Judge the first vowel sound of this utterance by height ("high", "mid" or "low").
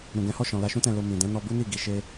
high